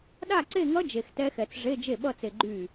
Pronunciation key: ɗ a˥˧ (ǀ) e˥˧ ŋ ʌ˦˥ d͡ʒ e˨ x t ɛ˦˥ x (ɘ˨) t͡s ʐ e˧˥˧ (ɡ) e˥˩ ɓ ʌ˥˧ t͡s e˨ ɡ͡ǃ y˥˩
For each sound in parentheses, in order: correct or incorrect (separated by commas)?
correct, incorrect, incorrect